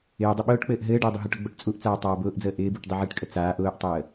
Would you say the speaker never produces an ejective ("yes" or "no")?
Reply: no